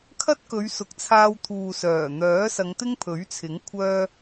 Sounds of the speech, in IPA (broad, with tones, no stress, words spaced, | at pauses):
kʰɐ˥t̚kɵ˨˧ɥsʊ˨k̚t͡sʰaː˧w t̪ʰuː˨sœː˨˩n̪œː˨˥sɐ˨˧ŋ t̪ɪ˥ŋpʰɵ˨˥ɥt͡sʰɪ˨˥ŋ kʷʰœː˧